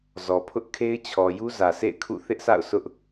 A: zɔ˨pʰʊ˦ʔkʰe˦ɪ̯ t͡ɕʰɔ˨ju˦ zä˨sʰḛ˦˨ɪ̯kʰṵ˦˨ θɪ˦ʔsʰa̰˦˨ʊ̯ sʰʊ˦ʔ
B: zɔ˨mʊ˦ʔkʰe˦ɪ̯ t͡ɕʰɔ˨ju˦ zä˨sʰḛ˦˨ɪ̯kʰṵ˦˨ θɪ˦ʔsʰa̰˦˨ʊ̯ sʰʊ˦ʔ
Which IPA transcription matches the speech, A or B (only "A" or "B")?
A